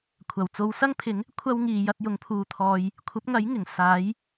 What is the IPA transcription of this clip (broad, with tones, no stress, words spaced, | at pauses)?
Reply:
kʷʰɐ˨˩wt͡so˨˧wsɐ˥ŋpʰɪ˨˥ŋ | kʷʰɐ˥w ŋiː˨jɐ˨˥t̚jʊ˨˥ŋ pʰuː˧t̪ʰɔː˧j | kʷʰɐ˨˥p̚ŋɐ˨˥jŋɪ˨˩ŋ saː˨˥j